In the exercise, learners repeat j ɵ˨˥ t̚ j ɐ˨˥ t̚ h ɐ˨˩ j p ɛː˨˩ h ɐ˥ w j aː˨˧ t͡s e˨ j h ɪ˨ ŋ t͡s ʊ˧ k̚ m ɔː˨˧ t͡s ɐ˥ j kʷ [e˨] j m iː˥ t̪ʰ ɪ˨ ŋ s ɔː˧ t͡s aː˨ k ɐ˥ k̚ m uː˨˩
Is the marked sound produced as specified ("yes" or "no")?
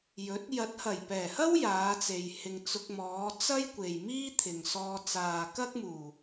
yes